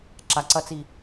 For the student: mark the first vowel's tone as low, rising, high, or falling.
low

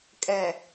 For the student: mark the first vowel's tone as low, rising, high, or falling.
low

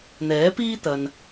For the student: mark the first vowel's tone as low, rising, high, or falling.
rising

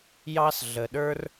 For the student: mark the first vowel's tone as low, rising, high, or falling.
high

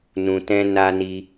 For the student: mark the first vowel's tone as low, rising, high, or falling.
low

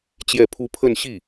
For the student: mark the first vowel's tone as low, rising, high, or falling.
falling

